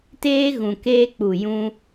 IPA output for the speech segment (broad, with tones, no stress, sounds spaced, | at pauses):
t eː˦ ɣ ũ˨ k eː˦ k͡p u˦˨ j ũ˦